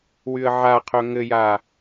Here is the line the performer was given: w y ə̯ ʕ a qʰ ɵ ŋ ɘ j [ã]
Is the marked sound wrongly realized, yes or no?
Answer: yes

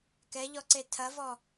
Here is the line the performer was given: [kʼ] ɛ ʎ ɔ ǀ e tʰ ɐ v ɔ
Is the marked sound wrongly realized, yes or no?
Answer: yes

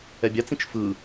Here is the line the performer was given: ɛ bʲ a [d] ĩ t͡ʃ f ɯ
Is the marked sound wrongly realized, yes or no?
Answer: yes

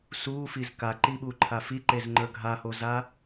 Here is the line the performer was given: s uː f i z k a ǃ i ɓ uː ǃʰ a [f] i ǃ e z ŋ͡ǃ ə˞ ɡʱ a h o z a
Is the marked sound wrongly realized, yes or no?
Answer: no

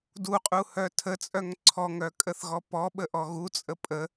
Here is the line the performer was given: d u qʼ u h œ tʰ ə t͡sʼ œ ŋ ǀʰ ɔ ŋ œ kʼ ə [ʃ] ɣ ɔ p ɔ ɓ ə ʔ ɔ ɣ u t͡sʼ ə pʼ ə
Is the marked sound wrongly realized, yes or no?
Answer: yes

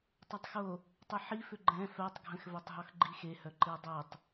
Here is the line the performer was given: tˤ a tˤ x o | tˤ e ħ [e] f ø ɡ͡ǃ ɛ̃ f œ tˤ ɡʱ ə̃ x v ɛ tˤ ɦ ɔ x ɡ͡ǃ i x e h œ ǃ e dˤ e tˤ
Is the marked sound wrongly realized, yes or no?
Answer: yes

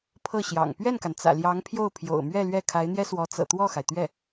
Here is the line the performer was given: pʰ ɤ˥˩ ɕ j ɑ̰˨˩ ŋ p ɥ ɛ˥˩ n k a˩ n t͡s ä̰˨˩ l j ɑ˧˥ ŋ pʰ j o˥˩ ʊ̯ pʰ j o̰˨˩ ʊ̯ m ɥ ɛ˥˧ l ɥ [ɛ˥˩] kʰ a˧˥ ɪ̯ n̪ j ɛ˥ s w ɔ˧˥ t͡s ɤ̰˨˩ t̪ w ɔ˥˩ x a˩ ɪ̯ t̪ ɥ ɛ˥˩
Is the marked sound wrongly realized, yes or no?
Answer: no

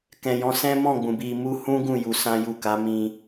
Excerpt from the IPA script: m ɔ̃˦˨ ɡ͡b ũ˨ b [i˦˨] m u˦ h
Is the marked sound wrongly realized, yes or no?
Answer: yes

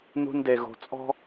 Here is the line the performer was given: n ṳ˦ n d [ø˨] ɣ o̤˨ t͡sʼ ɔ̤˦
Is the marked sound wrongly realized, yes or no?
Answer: yes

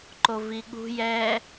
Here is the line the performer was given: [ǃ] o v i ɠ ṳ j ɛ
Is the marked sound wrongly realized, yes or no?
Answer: no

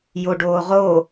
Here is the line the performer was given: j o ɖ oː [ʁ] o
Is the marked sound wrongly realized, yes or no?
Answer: no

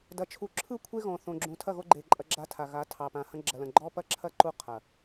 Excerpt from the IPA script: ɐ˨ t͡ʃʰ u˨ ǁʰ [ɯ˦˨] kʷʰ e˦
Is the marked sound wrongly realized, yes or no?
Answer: no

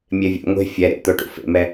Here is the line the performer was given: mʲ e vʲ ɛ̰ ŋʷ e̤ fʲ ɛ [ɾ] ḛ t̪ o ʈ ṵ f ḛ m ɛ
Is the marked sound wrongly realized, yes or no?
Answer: no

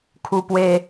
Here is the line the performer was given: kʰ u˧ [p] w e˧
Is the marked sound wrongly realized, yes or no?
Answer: no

